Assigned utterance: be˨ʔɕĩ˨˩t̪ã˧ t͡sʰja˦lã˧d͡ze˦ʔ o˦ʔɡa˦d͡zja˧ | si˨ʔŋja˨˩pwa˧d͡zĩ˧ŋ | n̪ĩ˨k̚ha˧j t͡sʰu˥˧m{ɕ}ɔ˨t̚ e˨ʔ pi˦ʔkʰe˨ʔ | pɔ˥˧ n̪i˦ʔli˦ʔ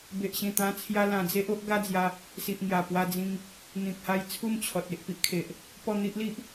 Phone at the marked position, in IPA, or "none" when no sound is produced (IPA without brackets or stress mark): t͡ɕʰ